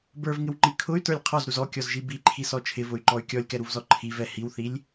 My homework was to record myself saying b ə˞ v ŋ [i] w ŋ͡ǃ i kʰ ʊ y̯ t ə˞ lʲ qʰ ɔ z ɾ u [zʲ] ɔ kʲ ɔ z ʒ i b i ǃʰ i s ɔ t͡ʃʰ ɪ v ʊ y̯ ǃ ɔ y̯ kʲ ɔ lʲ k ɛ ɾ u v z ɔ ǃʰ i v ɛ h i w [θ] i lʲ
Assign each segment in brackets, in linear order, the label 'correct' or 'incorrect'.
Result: incorrect: ɪ, incorrect: z, correct

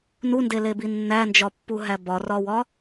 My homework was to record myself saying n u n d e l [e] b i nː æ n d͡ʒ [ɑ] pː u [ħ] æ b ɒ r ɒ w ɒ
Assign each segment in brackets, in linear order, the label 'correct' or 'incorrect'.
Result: correct, incorrect: ɒ, incorrect: ɦ

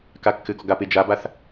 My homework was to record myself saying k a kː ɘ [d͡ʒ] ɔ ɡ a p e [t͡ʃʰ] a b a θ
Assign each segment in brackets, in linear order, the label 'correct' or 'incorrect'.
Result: incorrect: ɡ, incorrect: d͡ʒ

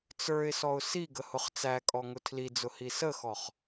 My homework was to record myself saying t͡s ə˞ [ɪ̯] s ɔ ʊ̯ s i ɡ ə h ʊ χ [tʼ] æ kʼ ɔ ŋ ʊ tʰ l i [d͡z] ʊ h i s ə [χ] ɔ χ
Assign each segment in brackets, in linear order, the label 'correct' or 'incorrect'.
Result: correct, incorrect: t͡s, correct, incorrect: x

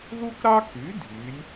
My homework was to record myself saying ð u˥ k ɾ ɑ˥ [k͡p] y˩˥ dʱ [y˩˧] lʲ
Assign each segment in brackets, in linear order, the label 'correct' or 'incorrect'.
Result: incorrect: k, correct

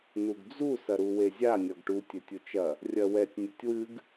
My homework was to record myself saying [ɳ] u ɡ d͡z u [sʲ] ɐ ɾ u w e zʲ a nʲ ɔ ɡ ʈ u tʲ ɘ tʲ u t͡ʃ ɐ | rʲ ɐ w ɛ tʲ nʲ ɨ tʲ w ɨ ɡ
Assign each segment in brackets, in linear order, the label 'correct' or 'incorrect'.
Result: incorrect: n, incorrect: s

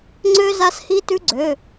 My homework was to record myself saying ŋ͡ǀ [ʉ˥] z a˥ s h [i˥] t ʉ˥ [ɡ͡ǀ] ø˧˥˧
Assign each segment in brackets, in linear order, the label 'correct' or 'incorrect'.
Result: incorrect: ø˥, correct, correct

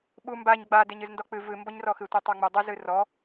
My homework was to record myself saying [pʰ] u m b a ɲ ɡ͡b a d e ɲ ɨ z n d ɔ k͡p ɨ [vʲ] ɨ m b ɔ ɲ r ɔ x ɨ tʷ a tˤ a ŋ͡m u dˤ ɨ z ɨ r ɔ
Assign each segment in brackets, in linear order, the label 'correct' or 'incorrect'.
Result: incorrect: ɓ, incorrect: v

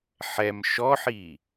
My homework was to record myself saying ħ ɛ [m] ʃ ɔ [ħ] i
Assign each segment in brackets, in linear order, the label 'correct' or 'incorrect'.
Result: correct, correct

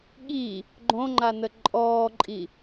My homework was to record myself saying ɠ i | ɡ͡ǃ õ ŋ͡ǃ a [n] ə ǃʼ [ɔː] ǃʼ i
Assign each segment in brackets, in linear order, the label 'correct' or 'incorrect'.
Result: correct, correct

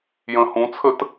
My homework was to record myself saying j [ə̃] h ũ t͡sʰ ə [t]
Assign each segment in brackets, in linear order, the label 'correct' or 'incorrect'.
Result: correct, correct

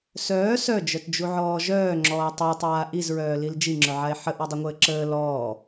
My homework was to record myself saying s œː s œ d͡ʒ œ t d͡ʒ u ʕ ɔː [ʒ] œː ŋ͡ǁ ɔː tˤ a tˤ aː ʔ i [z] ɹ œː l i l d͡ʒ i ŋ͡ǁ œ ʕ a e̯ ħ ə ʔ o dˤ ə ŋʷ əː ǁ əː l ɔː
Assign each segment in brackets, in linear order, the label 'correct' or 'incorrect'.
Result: correct, correct

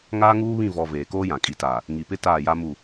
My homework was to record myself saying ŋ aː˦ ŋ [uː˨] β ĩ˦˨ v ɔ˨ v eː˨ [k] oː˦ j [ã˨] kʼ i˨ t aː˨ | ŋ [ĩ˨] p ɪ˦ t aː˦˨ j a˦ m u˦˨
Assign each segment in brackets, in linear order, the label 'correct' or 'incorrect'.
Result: incorrect: uː˦, correct, correct, incorrect: i˨

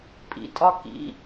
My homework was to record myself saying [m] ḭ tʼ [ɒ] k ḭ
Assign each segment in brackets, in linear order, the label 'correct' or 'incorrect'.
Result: incorrect: pʼ, correct

